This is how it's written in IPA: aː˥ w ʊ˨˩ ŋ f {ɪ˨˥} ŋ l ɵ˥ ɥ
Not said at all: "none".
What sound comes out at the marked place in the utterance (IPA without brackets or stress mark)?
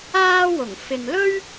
ɪ˨